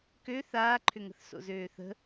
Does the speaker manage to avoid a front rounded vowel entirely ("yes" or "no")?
no